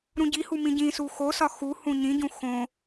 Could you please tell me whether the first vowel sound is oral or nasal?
nasal